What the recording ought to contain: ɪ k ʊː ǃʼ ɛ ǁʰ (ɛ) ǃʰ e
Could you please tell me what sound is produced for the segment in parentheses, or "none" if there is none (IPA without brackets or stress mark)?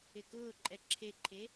e